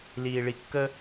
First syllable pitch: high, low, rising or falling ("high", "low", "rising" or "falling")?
low